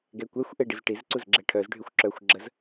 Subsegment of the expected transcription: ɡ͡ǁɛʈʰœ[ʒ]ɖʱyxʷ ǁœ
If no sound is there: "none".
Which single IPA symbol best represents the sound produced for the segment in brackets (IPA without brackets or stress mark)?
z